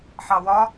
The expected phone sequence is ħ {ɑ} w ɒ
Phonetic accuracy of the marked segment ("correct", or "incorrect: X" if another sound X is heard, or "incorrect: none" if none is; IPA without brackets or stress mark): correct